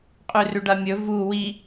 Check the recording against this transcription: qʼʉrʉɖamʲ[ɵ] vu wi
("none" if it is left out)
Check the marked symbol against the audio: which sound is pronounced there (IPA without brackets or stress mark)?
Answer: ɵ